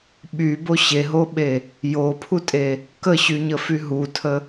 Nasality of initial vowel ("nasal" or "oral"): oral